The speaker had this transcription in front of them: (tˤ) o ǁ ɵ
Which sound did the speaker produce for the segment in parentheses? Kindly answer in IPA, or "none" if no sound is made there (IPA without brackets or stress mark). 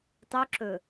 tˤ